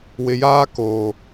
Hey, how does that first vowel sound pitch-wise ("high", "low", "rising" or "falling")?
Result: low